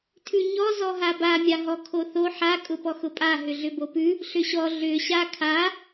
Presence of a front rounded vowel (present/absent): present